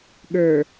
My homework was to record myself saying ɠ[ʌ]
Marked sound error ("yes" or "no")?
yes